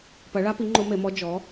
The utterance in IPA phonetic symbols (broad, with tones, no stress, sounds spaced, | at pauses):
p ɐ˩˥ ɭ a˧˥ p i˩˥ ŋ͡ǃ o˧˥ m e˩˥ m ɔ˧˥ d͡ʒ ɔ˩˥